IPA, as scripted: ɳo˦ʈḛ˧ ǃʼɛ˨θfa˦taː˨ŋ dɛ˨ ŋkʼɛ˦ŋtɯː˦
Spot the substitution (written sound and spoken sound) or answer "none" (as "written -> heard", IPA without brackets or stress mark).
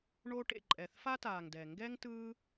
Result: kʼ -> ɡ